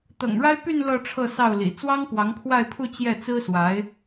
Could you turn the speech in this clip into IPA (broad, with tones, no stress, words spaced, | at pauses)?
t̪ɤ̰˨˩ŋɻa˥ɪ̯py˥˧n lɤ˥˧ʈ͡ʂʰɤ˥˧sɑ˥˩ʊ̯ lḭ˨˩ t͡swɑ˥ŋpwɑ˧˥ŋpʰwa˥˧ɪ̯pʰu˥˧ t͡ɕjɛ˥˩t͡sɹ̩˥swa˧˥ɪ̯